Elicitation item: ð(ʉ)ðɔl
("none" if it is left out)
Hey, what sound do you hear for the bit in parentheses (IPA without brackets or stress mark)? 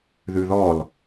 ʉ